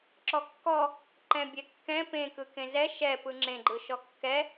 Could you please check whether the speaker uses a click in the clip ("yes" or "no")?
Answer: yes